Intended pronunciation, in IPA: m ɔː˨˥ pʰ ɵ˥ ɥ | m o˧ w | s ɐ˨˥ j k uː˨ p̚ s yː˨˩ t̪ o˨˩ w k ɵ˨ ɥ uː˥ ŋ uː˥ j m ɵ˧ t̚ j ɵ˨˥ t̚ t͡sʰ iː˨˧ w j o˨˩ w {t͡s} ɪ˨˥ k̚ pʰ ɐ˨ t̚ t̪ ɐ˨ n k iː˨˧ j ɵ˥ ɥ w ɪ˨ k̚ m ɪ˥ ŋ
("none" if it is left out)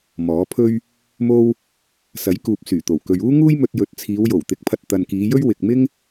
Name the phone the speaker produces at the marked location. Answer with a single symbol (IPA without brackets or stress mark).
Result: t̪